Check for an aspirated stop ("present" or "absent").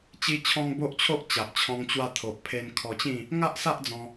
present